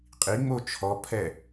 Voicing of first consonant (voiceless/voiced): voiceless